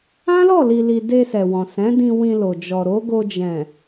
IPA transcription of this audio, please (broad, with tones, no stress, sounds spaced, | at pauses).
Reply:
ã˦ l ɔ˦˨ l i˨ l i˨ d e˧ s ɛ˨ w ɔ̃˨ s ɛ̃˨˦ d ĩ˧ w ĩ˧ l o˨ d͡ʒ ɔ˨ ɾ o˨˦ ɡ o˧ d͡ʒ ɛ̃˨